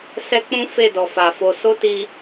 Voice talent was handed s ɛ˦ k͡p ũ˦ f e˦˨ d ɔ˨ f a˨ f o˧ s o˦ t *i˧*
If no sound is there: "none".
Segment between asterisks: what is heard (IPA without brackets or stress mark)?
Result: i˧